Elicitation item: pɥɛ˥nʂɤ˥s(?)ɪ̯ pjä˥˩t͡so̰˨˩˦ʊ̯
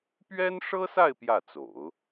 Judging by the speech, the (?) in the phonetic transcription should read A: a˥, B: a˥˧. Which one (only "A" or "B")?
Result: B